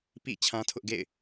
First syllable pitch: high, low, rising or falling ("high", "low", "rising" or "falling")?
falling